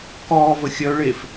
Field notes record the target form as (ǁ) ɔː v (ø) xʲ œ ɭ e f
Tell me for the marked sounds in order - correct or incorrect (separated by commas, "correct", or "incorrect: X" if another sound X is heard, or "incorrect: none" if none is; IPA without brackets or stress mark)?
incorrect: k, incorrect: ə